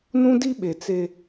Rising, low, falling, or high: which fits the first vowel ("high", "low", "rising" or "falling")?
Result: high